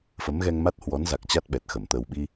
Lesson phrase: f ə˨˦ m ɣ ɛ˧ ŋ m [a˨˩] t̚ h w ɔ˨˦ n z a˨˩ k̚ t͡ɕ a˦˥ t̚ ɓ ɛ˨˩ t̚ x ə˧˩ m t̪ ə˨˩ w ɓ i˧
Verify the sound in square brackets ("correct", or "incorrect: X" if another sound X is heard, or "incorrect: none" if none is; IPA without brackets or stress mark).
incorrect: a˦˥